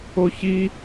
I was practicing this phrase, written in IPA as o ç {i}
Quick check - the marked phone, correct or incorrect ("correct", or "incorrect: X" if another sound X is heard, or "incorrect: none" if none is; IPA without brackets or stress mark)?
correct